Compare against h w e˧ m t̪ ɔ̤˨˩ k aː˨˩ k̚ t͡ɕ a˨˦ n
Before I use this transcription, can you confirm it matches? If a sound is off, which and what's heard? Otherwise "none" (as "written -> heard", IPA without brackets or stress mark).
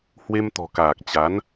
none